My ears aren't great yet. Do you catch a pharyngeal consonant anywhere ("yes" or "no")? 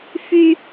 no